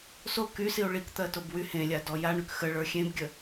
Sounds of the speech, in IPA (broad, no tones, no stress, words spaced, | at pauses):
so kysio̯ ɭikt̪ɜtob wy hẽlʲadɔ jaɳyk xəɭə˞ xʲẽbɡʲə